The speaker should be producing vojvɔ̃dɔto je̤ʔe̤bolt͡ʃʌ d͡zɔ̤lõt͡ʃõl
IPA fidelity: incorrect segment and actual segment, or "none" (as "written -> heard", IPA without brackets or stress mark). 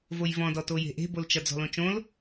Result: none